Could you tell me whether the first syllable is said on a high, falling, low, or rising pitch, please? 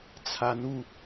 rising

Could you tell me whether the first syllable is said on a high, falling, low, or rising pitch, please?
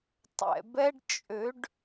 low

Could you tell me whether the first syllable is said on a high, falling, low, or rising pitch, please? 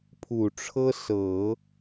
low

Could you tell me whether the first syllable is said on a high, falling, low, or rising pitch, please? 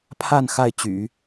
falling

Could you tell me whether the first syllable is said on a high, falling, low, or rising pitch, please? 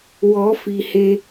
rising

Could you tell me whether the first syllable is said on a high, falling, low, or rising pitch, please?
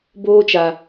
high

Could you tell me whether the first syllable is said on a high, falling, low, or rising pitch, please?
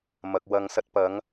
low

